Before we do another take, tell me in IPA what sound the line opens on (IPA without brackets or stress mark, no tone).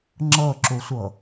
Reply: ŋ͡ǁ